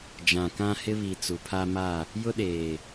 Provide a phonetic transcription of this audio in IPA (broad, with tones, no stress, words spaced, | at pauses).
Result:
d͡ʒã˨kã˦ hɪ˦βi˨ t͡su˨pʰa˦ma˦˨ | jʊ˦ɗeː˨